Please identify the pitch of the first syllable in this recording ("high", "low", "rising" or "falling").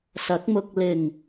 rising